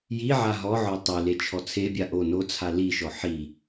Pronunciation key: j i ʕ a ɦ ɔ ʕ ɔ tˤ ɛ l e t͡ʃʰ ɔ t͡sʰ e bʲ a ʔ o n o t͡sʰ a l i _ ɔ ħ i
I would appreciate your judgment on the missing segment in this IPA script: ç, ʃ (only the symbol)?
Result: ʃ